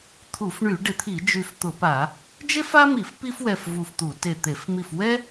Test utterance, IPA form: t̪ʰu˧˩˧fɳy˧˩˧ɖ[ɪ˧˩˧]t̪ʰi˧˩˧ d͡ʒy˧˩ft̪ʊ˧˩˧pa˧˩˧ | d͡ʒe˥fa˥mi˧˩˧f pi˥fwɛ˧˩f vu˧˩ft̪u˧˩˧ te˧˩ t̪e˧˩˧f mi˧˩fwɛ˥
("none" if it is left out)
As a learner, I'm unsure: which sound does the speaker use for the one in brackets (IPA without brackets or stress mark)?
ɪ˧˩˧